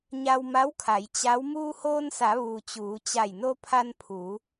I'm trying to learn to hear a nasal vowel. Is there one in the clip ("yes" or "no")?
no